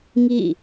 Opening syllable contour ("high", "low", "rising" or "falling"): falling